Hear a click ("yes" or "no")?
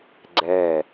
yes